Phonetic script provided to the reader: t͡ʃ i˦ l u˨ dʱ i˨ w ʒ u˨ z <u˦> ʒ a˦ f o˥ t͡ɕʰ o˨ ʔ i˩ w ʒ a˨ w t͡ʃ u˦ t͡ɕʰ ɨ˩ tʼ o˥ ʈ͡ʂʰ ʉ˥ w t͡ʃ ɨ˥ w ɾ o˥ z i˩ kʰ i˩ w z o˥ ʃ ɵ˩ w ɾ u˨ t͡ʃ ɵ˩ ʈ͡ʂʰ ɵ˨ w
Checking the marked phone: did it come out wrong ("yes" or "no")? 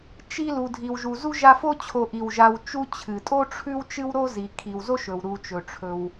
yes